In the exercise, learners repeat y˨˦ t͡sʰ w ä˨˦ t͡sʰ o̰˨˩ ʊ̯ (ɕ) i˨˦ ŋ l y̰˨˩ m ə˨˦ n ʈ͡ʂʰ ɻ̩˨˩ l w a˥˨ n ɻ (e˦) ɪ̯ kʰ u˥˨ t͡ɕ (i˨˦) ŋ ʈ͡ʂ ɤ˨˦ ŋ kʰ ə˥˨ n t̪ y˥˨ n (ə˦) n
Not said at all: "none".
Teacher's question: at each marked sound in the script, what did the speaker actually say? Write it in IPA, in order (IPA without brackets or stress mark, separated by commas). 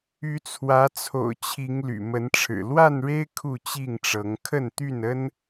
t͡ɕʰ, e˦, i˥˨, ə˦